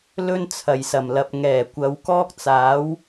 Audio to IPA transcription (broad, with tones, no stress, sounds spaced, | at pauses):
l ɵ˥ n t͡sʰ ɐ˨˩ j s ɐ˨˩ m l ɐ˨ p̚ ŋ ɛː˨˩ kʷ ɐ˨˧ w k ɔː˥ k̚ t͡s aː˨˥ w